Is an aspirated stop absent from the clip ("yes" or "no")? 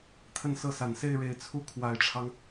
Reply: no